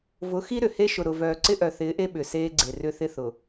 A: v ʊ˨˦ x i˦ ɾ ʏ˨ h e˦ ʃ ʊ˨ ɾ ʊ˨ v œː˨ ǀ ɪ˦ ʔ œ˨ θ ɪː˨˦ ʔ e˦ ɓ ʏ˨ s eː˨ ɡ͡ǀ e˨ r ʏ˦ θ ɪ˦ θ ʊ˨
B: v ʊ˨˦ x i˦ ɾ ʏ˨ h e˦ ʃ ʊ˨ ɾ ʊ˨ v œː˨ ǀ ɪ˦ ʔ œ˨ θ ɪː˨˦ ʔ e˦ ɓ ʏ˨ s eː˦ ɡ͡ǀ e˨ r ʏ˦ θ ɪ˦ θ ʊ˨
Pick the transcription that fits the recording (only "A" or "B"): B